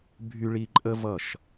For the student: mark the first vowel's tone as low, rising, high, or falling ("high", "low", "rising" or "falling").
high